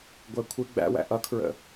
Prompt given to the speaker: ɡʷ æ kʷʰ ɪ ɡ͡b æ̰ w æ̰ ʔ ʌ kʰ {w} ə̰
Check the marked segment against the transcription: incorrect: ɹ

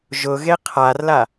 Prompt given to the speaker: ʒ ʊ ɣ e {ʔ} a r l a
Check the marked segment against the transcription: incorrect: qʰ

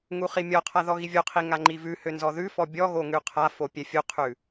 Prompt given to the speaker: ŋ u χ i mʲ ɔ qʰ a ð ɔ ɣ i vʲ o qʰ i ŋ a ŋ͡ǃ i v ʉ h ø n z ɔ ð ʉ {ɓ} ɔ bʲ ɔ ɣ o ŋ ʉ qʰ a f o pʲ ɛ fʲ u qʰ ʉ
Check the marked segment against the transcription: incorrect: f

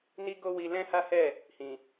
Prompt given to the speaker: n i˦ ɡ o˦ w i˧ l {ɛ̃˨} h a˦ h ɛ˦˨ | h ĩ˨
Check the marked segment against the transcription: incorrect: ɛ̃˦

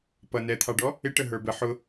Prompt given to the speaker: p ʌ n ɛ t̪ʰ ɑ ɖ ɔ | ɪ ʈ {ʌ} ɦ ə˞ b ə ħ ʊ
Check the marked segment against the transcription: incorrect: ə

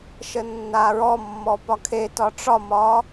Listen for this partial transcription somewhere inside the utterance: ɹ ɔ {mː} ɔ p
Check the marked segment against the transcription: correct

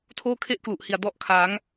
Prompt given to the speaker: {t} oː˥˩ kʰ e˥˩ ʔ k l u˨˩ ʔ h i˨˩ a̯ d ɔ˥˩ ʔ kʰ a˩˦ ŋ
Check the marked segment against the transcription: incorrect: tʰ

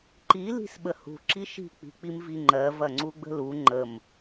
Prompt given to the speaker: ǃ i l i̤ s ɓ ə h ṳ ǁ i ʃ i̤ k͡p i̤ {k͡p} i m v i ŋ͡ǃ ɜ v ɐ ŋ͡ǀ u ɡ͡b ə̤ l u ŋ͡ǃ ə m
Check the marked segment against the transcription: correct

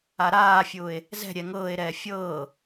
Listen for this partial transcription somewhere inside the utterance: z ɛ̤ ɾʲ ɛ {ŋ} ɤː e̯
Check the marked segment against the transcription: correct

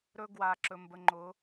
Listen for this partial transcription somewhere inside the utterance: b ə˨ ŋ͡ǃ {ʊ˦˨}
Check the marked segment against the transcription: incorrect: ʊ˨˦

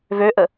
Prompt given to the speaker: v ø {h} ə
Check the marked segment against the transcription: incorrect: ʔ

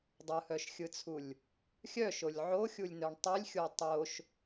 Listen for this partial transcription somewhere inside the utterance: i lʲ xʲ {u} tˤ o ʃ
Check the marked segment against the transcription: incorrect: o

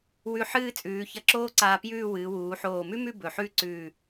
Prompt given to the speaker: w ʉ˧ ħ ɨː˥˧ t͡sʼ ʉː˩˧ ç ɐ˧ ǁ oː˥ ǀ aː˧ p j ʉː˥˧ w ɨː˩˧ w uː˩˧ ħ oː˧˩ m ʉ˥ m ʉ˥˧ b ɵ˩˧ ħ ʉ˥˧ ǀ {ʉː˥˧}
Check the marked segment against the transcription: incorrect: ʉː˧˩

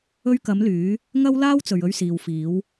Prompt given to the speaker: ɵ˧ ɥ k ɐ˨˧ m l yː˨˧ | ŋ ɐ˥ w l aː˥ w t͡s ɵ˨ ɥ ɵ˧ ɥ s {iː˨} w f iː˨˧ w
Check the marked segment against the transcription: correct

